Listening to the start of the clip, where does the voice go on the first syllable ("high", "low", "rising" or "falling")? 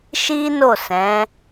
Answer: high